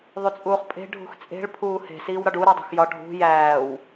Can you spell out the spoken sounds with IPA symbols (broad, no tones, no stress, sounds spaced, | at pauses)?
ðˤ u t͡sʼ uː χ pʼ e̤ ɖʱ ṳ x t͡sʼ e̤ ɭ pʰ uː h e̤ s iː w ɾ ɒ ɖ u ɾ æ dˤ ṳ x j ɒ ɖʱ ṳ j æː w